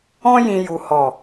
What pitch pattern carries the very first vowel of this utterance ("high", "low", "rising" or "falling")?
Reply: high